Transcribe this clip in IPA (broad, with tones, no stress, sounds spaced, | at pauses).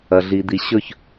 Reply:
ɐ˨ ɮ i˨ d̪ i˨ ɕ ɵ˦˨ ç